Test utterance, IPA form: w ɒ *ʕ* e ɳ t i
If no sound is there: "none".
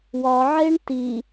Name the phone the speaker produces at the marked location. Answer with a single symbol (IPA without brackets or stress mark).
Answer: ʕ